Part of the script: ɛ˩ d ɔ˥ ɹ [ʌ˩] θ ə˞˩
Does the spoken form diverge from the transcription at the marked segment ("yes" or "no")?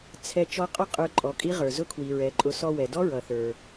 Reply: no